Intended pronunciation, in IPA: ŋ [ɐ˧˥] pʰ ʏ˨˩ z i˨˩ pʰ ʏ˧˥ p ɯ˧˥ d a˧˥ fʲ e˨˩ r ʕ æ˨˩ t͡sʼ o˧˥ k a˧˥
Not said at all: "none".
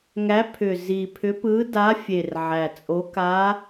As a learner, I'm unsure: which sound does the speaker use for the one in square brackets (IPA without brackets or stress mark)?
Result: æ˧˥